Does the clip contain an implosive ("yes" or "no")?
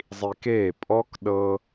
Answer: yes